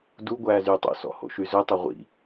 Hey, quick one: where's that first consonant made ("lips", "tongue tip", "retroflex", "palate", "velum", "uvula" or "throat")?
tongue tip